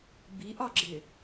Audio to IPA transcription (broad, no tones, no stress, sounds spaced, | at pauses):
b i ʔ ɒ ɡ͡ǁ ɪ